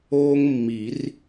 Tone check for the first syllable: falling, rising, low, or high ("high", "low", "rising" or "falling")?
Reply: high